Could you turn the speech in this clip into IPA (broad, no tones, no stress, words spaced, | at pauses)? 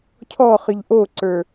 cʰɔχɨʎ ʔoǀə˞